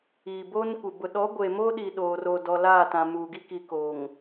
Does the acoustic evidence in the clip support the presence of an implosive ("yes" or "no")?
yes